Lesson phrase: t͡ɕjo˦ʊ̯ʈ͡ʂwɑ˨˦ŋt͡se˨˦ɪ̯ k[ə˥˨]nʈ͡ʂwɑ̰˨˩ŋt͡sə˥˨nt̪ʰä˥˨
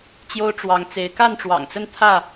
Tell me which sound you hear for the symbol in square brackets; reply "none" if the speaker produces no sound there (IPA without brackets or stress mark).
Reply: a˥˨